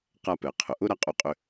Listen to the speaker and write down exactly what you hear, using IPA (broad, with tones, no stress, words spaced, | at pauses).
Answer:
qa˧pɛ˩qʰʊ˩ʔʊ˥ ɾa˧qʼu˧qʼʏ˧